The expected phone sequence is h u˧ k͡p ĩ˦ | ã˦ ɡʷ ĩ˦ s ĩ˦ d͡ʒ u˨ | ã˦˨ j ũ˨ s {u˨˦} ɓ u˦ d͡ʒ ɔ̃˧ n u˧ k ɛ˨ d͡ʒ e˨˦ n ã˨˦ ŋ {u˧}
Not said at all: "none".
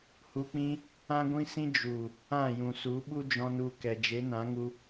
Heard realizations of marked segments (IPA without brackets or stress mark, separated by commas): u˨˦, u˦